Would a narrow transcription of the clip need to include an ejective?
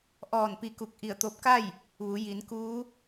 no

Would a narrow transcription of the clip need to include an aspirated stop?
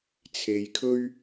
yes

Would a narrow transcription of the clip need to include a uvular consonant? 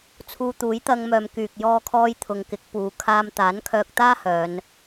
no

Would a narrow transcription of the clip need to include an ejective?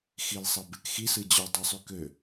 no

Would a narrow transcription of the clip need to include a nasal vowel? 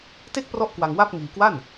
no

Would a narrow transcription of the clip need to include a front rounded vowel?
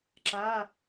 no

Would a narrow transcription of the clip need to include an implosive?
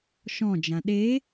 yes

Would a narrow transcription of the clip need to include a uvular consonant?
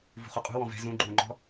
yes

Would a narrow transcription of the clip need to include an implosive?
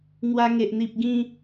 no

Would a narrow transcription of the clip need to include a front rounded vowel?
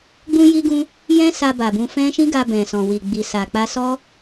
no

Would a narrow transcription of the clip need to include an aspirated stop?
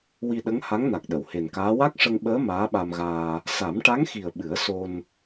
no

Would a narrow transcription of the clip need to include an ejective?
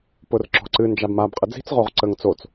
yes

